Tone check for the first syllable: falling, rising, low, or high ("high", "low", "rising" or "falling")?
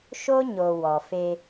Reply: high